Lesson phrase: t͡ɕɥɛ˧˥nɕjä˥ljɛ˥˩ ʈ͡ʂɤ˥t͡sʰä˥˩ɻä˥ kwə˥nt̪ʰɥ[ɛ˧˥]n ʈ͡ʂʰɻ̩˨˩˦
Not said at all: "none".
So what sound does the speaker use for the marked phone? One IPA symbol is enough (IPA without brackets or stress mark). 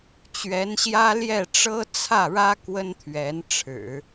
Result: ɛ˧˥